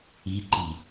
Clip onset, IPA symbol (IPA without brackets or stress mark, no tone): i̤